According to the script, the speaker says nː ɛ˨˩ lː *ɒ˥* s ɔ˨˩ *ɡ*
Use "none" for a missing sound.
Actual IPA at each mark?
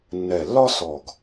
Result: ɒ˥, ɡ

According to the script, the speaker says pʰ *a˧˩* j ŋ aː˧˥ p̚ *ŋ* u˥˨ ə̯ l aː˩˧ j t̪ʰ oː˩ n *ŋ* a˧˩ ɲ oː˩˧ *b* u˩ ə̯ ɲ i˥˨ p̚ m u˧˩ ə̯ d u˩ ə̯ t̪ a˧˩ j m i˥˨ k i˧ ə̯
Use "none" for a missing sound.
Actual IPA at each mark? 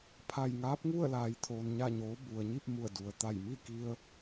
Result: a˧˩, ŋ, ɲ, b

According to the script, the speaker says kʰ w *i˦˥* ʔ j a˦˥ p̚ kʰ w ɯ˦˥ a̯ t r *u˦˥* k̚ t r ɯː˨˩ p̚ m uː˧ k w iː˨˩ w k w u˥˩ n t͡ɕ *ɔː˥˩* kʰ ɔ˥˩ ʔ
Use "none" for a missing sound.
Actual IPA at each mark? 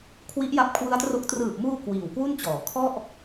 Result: i˦˥, o˦˥, ɔː˩˦

